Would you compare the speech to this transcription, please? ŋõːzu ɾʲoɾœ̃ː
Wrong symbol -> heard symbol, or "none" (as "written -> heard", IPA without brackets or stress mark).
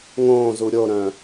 none